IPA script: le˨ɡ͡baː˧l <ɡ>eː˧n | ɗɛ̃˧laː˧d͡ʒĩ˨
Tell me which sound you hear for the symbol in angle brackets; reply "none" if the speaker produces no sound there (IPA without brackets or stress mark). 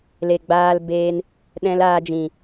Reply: b